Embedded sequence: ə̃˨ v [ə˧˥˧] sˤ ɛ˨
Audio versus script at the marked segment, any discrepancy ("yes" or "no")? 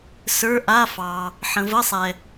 no